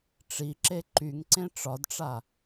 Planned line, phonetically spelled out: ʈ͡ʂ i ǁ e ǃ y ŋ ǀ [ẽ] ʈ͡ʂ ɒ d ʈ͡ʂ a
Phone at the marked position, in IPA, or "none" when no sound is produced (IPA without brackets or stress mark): ẽ